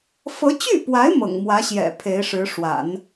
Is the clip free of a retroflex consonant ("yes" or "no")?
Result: no